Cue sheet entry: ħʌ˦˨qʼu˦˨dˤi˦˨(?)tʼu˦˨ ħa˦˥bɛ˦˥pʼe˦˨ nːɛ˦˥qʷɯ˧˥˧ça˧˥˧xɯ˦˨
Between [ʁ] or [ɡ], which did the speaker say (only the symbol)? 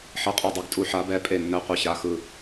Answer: ɡ